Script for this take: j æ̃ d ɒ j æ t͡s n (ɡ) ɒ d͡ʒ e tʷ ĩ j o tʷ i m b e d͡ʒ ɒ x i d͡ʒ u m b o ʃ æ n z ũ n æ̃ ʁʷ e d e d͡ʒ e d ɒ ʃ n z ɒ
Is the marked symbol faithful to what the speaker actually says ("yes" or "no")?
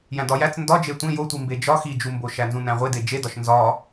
no